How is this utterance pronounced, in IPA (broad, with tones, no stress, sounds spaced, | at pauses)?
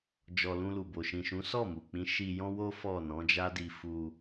d͡ʒ ɔ˨ l ũ˧ l u˨ b o˨ ʃ ĩ˨ ʃ ũ˨˦ s ɔ˦˨ m u˨ k͡p ĩ˨˦ ʃ i˧ j ɔ̃˦ w o˦ f ɔ˦˨ n ɔ̃˨˦ d͡ʒ a˦ d i˧ f u˧